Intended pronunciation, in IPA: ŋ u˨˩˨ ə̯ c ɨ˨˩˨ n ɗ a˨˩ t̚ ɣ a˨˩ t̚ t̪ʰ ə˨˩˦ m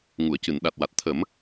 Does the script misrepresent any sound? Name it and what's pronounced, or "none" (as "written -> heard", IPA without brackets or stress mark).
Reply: ɣ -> w